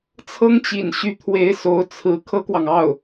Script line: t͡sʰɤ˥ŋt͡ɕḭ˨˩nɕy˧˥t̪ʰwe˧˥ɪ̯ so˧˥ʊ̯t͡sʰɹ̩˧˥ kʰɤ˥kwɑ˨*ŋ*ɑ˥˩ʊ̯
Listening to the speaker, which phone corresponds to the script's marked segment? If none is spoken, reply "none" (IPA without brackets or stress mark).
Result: ŋ